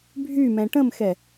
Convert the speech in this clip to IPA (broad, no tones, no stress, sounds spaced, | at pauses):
bʱ y m ɛ̃ ʈ ə̃ m x ɛ